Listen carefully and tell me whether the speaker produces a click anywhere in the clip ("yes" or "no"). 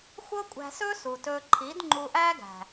yes